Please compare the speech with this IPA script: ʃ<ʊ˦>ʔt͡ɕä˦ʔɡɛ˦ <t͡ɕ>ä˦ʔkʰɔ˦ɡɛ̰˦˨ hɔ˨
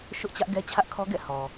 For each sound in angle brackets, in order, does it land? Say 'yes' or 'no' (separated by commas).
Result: yes, no